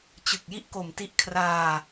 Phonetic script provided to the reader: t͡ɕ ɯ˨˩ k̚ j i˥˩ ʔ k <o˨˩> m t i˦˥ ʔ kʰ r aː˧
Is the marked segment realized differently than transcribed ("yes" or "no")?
no